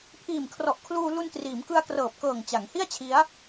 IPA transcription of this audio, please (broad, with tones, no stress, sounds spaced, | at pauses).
pʰ iː˨˩ m kʰ r ɔ˨˩ ʔ kʰ l uː˧ l u˧ n t r iː˩˦ m k ɯ˧ a̯ k r ɤː˨˩ p̚ k ɤː˨˩ ŋ t͡ɕ a˩˦ ŋ h i˥˩ a̯ t͡ɕʰ i˦˥ a̯